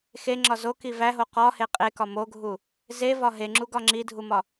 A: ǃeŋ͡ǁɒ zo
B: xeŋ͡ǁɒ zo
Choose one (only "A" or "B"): B